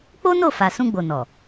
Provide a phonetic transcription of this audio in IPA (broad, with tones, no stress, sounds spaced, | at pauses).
k͡p o˦ n o˦˨ f a˨ s ũ˧ ɡ͡b o˨ n ɔ˨